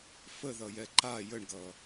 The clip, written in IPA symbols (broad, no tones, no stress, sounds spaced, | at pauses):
f ə ð ʌ j ɛ ǃ a j ə ɳ ɡ ʌː